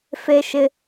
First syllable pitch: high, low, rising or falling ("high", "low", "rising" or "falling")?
high